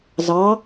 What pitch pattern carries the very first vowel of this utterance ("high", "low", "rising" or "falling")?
rising